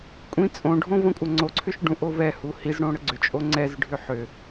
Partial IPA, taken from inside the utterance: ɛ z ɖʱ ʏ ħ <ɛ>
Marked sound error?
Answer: yes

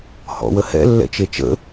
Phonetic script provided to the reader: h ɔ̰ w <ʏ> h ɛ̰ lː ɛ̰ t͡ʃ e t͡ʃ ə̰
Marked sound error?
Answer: yes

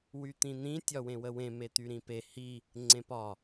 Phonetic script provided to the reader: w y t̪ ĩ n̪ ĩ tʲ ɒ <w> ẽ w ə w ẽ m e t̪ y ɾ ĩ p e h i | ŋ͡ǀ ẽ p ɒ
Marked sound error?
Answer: no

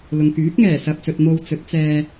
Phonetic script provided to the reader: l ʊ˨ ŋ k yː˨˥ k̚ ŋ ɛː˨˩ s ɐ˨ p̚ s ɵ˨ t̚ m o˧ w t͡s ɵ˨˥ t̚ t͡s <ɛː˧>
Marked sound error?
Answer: no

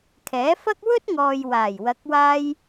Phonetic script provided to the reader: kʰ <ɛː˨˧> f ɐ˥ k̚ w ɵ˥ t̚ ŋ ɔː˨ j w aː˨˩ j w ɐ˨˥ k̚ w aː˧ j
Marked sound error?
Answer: yes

